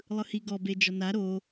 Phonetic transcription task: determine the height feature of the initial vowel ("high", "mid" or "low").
high